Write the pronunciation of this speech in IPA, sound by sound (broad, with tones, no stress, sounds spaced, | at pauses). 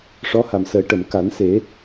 ʂ ɔ˧˥ h a˨˩ m s əː˨˩˦ ʈ ə˨˩˨ m k a˨˩˦ n s e˨˩˦